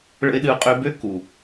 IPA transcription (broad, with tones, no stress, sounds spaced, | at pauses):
ɭ ə̰˧ ɪ̯ ɗ ɨ˧ ʊ̯ qʼ ø˧ b ø˦ k u˨